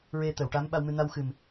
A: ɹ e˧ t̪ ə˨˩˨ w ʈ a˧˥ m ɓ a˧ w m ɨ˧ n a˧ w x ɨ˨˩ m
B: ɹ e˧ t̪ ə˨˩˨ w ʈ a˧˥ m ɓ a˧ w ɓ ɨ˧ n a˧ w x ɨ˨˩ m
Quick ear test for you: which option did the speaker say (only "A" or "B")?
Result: A